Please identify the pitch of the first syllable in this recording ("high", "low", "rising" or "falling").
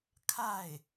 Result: falling